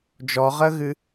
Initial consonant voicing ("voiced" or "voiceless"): voiced